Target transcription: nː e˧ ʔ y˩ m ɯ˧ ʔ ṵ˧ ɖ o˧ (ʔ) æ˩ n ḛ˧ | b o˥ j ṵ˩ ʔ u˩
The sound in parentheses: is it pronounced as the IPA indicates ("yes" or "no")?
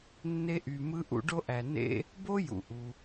yes